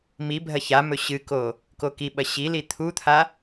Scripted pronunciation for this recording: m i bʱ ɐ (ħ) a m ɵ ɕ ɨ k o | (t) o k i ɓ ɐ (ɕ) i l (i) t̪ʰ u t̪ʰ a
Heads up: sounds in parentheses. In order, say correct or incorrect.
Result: incorrect: ç, incorrect: k, correct, correct

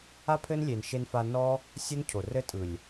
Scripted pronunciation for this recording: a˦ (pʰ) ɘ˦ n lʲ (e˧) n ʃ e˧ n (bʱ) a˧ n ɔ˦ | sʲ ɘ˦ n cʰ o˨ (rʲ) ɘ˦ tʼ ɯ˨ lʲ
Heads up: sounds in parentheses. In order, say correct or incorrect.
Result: correct, incorrect: e˨, incorrect: f, incorrect: r

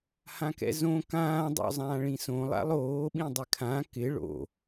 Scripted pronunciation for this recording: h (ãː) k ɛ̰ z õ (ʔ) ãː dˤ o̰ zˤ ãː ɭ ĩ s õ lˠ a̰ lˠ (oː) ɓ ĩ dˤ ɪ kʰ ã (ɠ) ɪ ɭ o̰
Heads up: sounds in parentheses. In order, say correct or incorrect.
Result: incorrect: ã, incorrect: k, correct, incorrect: k

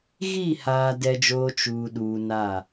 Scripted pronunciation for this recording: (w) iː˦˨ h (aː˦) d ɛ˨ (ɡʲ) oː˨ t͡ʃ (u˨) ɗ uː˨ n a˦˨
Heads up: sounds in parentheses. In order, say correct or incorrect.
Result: incorrect: ɣ, incorrect: aː˨, incorrect: d͡ʒ, incorrect: uː˨

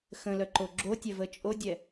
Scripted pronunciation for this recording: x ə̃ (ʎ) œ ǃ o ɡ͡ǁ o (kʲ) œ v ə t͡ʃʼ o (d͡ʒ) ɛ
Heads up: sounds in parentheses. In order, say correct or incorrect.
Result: incorrect: l, incorrect: tʲ, incorrect: dʲ

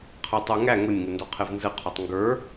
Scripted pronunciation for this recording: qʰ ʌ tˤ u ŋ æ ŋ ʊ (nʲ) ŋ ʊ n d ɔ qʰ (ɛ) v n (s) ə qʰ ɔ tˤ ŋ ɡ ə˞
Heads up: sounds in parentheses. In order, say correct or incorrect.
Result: correct, correct, incorrect: z

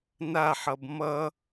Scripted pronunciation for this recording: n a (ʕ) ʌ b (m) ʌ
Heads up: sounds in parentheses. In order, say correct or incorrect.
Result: incorrect: ħ, correct

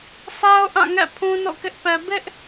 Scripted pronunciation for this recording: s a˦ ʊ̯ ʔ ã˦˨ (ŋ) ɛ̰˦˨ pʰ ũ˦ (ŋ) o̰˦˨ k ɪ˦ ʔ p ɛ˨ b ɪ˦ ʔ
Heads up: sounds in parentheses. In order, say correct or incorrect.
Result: correct, incorrect: n

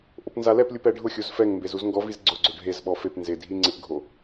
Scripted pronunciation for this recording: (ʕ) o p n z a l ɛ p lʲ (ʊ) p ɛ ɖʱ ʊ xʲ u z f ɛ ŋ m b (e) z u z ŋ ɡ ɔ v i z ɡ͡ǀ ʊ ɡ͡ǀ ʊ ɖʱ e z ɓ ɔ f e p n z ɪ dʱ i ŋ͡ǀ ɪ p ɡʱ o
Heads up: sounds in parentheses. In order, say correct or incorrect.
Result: incorrect: ʔ, incorrect: u, correct

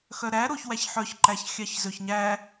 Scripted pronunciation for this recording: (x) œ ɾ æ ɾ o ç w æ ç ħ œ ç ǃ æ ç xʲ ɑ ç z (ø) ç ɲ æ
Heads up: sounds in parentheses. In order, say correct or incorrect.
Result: correct, correct

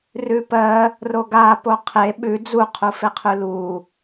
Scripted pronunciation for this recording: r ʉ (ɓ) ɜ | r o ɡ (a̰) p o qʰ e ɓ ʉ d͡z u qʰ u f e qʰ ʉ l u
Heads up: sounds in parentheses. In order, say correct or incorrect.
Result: incorrect: p, incorrect: a

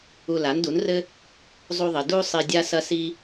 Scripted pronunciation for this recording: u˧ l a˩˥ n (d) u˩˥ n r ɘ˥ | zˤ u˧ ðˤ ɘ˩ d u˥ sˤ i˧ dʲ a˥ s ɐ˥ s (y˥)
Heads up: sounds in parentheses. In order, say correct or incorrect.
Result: correct, incorrect: i˥

